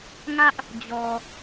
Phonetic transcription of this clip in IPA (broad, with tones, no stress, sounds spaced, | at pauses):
ŋ ä˦ ʔ | d͡ʑ ɔ˨